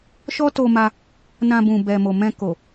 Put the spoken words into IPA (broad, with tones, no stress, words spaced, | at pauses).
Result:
ʃɔ˦to˧ma˧ | nã˧bũ˨ bɛ˨mo˨mɛ̃˧ ko˨